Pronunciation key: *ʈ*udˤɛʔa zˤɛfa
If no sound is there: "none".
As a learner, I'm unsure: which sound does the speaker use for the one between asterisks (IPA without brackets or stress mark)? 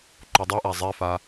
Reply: ǃ